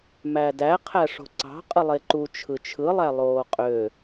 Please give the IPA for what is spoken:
mædæ qʰæʂo̤ǀɑ̤ qʼɯlˠeǃu t͡ʃʰɯt͡ʃʰɯ lˠælˠoːqʼø

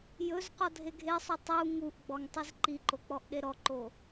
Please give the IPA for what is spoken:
jɵz qɔdʱeɡʱesˤu tˤu ŋuʔɡ͡bɔŋ tˤizǃiǃo k͡pɔʔɗeɾɔǃo

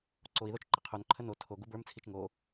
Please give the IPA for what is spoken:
ǀoi̯ðot͡ʃ ǃəqʰonǃʰə no tʰo ɡubə˞mt͡sʰit͡ʃ ŋo

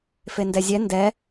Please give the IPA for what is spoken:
fendɛzʲɛ ndɛ

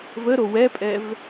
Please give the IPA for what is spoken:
vəɾo wɛpʼɛv

